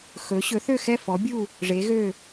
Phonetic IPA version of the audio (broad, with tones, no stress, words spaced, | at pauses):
xɵ˩˥ ɕɵ˩˥θø˥˩xɛ˥˩ fɔ˩˥bʲu˥˩ | ʐe˩˥ɣø˥˩